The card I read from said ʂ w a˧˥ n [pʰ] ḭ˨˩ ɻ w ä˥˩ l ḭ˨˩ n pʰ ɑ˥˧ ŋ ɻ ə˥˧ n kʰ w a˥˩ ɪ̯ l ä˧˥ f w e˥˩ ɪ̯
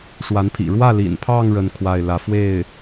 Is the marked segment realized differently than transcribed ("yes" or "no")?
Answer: no